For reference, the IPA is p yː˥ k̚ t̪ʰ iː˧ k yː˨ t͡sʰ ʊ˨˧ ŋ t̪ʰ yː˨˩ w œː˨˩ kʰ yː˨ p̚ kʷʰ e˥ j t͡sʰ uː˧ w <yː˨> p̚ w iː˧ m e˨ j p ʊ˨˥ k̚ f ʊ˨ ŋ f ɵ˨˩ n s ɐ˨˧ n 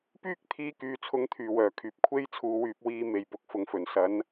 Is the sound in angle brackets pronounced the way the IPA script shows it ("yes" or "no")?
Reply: no